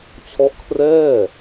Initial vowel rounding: rounded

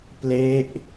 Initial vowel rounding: unrounded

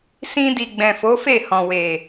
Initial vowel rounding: unrounded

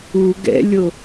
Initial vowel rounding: rounded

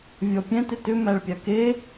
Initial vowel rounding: rounded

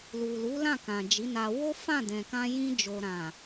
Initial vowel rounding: rounded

